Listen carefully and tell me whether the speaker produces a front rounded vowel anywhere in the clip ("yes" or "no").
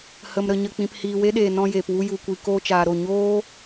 no